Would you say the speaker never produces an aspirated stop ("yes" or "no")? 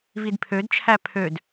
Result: no